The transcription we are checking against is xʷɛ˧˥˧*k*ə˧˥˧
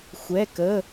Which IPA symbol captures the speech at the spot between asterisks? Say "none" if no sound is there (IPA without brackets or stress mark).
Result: k